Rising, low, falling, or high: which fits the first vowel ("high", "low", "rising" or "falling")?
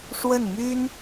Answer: falling